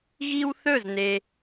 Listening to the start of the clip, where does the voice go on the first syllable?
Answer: high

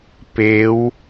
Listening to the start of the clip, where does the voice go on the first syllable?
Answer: rising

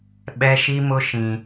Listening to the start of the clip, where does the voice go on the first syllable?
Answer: high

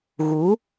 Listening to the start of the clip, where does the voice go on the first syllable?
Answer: rising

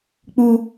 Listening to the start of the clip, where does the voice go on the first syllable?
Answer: low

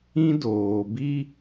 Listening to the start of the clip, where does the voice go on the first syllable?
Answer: high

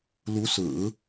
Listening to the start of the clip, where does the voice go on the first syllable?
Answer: rising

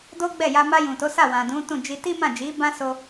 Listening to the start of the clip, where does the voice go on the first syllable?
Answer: high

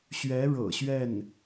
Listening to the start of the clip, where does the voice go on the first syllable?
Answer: rising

